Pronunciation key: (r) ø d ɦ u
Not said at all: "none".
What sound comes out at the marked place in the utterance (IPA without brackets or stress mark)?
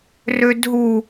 r